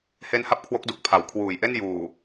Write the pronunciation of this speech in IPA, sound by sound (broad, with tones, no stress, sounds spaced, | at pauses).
h e˦˥ n h a˦˥ p̚ kʰ w o˦˥ k̚ d u˨˩ k̚ pʰ a˩˦ w kʰ w uː˨˩ j ʔ e˥˩ n j uː˨˩